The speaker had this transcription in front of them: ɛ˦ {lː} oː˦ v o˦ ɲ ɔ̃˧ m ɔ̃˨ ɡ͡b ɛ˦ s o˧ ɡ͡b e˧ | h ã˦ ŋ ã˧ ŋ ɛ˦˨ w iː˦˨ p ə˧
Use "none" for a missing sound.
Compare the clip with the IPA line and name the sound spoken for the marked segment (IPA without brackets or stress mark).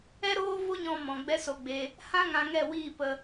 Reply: ɾ